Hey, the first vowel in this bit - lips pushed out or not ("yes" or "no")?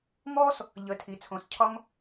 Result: yes